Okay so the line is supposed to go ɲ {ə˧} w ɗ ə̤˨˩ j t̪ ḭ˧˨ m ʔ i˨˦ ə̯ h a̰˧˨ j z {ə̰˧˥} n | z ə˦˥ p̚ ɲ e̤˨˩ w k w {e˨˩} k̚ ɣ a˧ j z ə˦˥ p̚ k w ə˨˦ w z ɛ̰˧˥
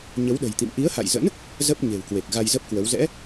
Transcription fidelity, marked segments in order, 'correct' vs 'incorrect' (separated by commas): incorrect, correct, correct